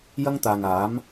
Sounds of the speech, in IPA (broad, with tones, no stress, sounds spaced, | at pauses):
j ɐ˥ ŋ t̪ aː˨ ŋ aː˨˥ m